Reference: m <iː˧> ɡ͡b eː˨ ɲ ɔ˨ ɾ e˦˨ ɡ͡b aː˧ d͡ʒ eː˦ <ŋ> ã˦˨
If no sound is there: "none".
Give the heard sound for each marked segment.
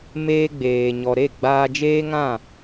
eː˧, ŋ

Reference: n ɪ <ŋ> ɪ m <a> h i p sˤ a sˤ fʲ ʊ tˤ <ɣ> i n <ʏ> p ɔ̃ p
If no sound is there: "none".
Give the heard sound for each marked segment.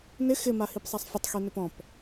x, a, x, ʏ

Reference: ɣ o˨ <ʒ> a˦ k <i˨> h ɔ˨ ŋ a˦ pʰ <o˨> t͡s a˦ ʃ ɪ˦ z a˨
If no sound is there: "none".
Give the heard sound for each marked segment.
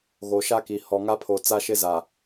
ʃ, i˨, o˨

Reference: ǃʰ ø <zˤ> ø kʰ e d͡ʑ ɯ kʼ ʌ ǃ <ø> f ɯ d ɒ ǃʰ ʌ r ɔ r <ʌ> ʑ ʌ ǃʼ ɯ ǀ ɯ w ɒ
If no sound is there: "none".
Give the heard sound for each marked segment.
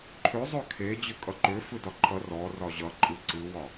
zˤ, ø, ɒ

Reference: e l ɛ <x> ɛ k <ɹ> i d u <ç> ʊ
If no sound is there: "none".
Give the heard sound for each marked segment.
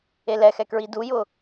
x, ɹ, j

